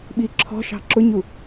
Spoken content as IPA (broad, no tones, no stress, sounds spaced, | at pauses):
ɓ i ǁʰ ɔ̤ ʃ ɑ̤ ǁ ʊ ɲ u